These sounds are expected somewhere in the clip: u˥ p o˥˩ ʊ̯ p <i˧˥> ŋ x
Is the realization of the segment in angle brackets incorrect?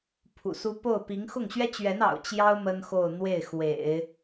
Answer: no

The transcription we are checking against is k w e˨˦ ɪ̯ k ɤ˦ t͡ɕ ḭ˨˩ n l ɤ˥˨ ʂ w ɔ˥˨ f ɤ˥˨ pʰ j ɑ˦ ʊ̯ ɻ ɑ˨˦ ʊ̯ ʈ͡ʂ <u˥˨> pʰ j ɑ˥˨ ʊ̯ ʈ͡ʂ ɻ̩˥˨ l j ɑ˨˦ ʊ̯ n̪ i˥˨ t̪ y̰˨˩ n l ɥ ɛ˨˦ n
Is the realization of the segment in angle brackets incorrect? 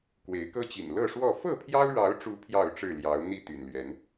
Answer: yes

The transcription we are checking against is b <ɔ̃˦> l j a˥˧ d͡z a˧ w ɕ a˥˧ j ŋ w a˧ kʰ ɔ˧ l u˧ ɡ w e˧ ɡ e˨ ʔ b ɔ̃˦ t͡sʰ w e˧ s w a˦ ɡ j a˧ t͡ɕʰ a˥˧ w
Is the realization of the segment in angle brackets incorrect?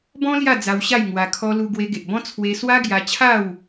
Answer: no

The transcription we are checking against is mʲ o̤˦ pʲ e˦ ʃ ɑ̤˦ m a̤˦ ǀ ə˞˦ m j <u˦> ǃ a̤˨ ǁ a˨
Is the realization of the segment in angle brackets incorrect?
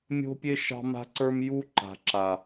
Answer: no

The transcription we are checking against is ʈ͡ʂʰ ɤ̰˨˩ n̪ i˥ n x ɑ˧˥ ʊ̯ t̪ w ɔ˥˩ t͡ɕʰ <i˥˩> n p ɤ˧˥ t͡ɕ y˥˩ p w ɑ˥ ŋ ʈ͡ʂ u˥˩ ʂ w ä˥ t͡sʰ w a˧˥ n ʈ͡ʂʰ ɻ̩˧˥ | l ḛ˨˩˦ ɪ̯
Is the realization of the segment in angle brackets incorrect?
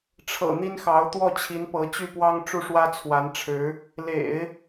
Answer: yes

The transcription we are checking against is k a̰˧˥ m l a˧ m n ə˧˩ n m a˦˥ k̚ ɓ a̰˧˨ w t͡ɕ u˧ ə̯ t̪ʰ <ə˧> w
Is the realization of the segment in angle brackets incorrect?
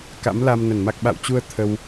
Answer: no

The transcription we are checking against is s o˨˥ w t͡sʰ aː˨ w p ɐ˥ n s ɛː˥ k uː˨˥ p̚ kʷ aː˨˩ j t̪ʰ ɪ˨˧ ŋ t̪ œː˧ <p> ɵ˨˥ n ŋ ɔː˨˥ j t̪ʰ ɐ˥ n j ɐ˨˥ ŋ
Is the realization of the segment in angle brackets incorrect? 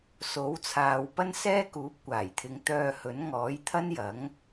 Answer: yes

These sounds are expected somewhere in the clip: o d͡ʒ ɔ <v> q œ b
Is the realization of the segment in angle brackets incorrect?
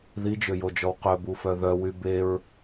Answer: yes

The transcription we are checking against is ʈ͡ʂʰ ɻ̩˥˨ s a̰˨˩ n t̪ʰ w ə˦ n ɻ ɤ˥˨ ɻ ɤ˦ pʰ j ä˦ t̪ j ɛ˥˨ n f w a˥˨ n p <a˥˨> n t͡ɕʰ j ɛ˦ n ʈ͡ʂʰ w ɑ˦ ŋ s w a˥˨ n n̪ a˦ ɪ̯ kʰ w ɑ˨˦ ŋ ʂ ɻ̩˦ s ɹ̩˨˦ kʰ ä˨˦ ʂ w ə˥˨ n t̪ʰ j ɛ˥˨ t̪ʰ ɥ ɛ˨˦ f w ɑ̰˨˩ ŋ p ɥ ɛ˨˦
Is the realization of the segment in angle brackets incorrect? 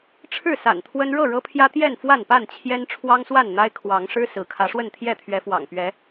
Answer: no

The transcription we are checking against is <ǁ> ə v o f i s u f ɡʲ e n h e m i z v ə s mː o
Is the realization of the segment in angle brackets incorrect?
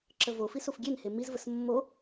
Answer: no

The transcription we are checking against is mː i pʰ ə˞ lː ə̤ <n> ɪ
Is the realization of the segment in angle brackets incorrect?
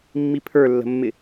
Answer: yes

